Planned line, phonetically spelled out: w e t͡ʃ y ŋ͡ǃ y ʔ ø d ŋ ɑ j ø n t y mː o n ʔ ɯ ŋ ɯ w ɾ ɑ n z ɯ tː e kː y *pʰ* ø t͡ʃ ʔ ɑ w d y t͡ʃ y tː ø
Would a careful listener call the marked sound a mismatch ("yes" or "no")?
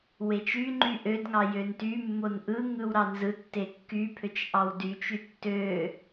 no